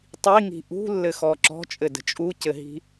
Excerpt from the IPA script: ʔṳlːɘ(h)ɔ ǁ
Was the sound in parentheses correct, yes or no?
no